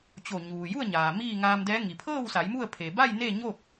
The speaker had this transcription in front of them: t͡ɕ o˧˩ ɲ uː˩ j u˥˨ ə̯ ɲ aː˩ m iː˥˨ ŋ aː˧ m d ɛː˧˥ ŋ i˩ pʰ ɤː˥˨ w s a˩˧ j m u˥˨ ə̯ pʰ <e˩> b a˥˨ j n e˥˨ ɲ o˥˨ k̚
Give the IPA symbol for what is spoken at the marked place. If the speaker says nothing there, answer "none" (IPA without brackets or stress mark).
e˩